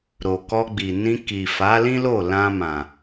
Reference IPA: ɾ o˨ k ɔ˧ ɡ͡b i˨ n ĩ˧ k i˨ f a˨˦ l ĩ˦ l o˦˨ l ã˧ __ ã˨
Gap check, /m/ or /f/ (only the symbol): m